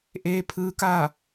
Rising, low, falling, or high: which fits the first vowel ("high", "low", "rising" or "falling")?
rising